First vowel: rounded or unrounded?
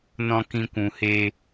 rounded